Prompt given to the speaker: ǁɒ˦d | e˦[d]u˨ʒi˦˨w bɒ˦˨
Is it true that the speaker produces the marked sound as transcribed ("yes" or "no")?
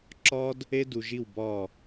yes